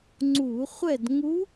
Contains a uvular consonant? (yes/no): yes